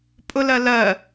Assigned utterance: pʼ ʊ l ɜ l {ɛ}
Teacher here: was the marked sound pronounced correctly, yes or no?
no